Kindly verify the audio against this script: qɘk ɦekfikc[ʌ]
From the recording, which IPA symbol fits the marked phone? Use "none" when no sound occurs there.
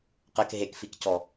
ɔ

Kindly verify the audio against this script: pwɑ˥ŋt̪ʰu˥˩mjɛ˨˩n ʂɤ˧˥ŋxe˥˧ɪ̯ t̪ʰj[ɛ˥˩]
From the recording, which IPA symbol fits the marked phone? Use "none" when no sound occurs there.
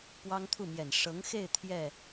ɛ˥˩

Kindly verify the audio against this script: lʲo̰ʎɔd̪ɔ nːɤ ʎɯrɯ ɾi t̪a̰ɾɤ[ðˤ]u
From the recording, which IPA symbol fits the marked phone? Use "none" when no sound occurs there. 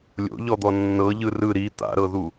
ð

